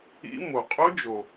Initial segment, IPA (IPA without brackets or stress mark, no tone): ḭ